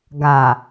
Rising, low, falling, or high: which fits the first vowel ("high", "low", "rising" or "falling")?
low